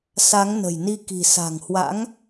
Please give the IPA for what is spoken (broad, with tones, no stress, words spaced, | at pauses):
sa˨˦ŋ nə̤˨˩jni˧ ki̤˨˩ sa̤˨˩ŋhwa̰˧˥ŋ